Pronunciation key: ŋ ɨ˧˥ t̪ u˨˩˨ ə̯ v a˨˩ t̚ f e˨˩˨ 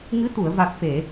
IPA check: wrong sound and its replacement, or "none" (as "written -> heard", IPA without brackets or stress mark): none